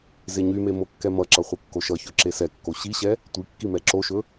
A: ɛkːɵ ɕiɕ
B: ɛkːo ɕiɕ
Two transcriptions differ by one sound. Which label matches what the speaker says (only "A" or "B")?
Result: B